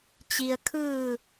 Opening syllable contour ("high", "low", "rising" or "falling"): low